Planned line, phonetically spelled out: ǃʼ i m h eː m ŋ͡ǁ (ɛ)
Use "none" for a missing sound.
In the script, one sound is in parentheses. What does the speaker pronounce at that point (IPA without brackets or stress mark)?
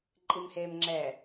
ɛ